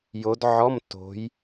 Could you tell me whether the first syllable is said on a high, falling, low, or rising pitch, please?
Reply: rising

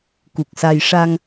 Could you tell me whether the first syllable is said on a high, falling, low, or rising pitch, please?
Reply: low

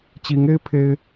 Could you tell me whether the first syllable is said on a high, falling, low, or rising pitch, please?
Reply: rising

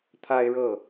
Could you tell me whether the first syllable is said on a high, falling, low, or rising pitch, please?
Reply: high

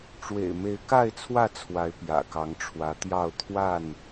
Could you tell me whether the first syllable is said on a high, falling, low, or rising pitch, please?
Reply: low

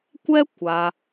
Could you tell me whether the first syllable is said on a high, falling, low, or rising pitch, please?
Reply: high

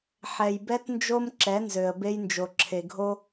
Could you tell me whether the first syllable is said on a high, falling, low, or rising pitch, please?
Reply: low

